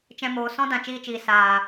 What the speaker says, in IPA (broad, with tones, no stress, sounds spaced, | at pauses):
t͡ʃ ɛ̃˧ m oː˨ s ɔ̃˦ d ã˨ t͡ʃ iː˧ t͡ʃ iː˨ s aː˨